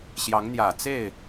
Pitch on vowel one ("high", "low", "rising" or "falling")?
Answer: rising